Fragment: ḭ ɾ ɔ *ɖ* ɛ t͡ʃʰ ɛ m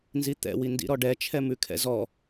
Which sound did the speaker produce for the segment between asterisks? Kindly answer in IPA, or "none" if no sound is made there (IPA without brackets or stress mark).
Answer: ɖ